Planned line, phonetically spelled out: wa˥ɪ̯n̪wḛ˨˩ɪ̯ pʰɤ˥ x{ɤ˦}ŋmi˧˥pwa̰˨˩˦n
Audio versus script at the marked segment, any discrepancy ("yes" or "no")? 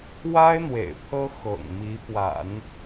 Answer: yes